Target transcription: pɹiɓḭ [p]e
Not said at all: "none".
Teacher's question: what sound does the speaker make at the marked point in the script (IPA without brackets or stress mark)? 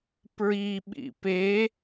p